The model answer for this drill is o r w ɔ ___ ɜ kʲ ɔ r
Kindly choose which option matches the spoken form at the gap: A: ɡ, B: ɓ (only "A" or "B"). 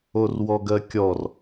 A